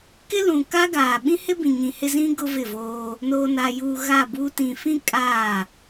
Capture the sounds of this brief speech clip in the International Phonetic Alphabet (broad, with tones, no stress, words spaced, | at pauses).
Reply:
kɪ˦lũ˨ka˦ɡaː˨ ɓĩ˦hɪ˦bĩ˨ ɲĩ˨hɪ˦zĩ˦ ɡʊ˦vɪ˦˨voː˦ | noː˨na˨juː˨ ɣaː˦˨buː˦ tĩ˨fĩ˦ kʼaː˦˨